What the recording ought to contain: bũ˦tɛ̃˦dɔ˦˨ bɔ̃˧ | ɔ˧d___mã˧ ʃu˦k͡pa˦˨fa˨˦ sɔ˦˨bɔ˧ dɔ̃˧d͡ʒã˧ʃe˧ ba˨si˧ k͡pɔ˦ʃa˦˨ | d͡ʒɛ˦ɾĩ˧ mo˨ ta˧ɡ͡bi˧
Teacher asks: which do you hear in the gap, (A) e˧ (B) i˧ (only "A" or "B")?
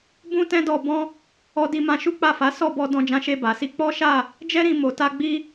B